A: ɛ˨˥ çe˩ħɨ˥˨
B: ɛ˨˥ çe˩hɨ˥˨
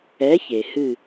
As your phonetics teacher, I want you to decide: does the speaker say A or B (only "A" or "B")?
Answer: B